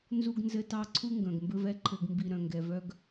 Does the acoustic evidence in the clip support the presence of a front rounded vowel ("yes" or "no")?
yes